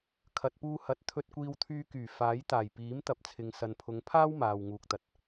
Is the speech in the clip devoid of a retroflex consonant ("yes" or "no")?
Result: yes